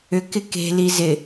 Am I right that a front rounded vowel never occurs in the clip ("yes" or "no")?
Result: no